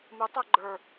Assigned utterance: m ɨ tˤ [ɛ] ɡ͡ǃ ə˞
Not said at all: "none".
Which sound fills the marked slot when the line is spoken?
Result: ɛ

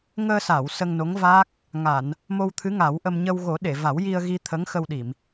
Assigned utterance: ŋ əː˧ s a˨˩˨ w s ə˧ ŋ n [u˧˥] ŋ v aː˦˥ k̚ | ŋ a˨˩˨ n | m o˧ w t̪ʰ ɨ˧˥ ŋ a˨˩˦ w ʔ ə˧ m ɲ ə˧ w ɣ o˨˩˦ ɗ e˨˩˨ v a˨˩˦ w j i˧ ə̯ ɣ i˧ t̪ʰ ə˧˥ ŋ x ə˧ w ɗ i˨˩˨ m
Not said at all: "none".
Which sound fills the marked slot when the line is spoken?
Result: o˧˥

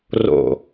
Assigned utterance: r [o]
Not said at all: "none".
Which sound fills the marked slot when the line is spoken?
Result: o̰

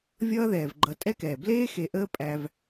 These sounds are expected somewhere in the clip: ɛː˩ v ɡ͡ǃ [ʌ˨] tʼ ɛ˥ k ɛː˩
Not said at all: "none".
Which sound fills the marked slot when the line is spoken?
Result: ʌ˨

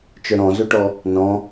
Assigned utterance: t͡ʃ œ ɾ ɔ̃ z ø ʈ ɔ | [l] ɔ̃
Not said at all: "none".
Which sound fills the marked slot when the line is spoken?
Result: n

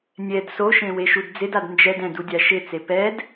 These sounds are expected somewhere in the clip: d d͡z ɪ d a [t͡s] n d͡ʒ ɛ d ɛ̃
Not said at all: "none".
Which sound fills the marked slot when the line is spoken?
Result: d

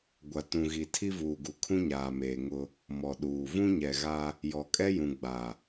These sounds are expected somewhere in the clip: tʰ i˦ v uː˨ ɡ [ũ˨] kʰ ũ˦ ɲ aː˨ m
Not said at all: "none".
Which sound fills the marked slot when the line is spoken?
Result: u˨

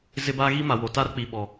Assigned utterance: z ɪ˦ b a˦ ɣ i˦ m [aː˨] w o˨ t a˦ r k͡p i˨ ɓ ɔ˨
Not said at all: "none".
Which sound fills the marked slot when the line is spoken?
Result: a˨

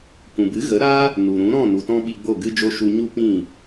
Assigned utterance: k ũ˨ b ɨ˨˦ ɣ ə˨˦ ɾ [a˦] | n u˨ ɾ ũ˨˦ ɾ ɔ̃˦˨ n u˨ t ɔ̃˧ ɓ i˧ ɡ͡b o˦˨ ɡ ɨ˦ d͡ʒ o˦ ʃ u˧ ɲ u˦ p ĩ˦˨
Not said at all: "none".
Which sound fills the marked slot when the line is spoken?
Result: a˦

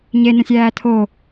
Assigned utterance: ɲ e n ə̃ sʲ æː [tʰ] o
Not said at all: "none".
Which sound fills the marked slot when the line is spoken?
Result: tʰ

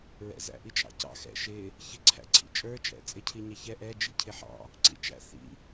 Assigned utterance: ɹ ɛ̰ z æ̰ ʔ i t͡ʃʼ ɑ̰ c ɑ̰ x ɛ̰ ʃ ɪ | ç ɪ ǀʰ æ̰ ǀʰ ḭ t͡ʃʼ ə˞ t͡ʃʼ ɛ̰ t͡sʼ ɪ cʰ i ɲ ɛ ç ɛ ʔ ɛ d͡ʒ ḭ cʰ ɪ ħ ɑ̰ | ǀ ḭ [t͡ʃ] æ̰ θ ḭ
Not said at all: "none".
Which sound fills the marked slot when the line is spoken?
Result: t͡ʃ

